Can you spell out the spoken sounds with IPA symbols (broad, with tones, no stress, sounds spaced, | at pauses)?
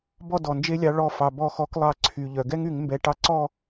b ɔ˥˨ d ɔ˩ n d͡ʒ e˦ lʲ ɑ˨˦ ɭ ɔ˧˩ f ɑ˩ b ɔ˧˩ x ɔ˨˦ k lˠ ɑ˧˩˧ ǀʰ y˩ ʎ œ˩ ɡ ɛ˦ ŋ y˧˩˧ ŋ m b ɛ˨˦ ʈ ɑ˦ ǀ ɔ˥˨